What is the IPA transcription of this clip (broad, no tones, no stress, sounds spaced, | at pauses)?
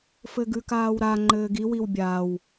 f ɘ ɡ ʉ k aː w ɾ a ŋ͡ǃ ɘː ɡ i w i w bʲ aː w